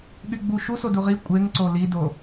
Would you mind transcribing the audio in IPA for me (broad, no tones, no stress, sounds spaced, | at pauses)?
ɠ y ɡ͡b u ʃ u s o d u ʁ i kʷʼ e ŋ ǀ o l i d o